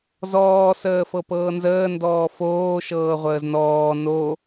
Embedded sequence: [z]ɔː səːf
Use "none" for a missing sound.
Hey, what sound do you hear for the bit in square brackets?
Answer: z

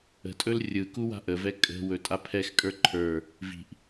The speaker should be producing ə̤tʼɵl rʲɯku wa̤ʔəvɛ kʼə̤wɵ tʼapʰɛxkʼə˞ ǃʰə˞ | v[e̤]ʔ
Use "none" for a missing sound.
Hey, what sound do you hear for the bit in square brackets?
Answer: i̤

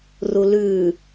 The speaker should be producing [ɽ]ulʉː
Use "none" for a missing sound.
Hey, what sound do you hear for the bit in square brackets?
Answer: r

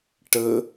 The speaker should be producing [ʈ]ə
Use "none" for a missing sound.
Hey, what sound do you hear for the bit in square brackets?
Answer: ʈ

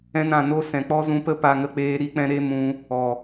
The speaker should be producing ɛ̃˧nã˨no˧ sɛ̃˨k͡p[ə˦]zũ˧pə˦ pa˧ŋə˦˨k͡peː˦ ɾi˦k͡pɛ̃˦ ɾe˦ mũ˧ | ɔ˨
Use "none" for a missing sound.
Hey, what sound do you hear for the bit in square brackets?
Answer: ɔ˦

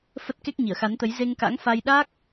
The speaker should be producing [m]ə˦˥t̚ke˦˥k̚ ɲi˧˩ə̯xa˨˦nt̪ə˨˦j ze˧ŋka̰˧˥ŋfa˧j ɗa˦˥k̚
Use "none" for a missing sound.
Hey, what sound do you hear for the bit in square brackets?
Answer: f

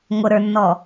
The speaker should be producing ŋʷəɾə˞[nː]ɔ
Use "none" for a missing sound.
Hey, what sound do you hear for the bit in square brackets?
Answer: nː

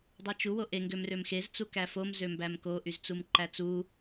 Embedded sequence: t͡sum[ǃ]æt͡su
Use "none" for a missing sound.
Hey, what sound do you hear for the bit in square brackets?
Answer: ǃ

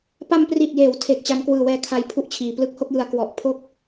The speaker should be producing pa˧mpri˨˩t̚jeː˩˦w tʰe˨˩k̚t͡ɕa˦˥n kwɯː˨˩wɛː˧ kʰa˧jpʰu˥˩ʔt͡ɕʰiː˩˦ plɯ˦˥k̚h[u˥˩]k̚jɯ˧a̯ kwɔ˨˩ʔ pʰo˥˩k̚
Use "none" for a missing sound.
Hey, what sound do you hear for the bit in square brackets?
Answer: o˥˩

